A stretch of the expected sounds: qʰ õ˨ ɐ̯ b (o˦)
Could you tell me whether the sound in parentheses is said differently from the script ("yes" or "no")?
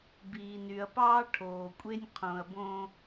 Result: yes